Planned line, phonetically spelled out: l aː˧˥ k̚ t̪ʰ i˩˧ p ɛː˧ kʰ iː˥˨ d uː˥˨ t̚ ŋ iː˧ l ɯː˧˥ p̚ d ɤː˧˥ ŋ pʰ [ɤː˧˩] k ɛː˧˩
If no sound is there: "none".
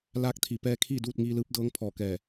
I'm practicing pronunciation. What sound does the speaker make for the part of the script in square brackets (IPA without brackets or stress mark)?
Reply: ɔː˧˩